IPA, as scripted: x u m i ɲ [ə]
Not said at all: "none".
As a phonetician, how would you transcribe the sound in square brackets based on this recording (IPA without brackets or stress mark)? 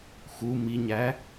æ